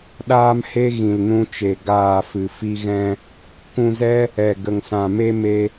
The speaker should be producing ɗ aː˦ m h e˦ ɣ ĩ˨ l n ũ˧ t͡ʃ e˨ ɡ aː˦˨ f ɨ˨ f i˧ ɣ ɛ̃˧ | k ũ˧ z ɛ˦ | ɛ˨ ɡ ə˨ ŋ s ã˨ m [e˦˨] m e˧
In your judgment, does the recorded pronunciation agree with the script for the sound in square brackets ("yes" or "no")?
no